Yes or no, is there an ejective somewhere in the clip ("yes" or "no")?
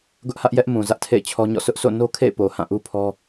no